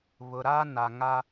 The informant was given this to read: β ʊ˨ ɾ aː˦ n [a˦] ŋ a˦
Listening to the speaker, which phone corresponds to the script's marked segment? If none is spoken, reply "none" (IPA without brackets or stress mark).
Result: a˨